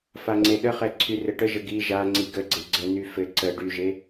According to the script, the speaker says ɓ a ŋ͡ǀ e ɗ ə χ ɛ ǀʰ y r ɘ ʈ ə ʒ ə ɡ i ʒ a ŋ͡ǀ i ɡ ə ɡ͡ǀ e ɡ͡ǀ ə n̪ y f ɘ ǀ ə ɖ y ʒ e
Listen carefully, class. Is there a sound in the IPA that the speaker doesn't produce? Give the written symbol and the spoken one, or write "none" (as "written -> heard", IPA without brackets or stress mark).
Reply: ɓ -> f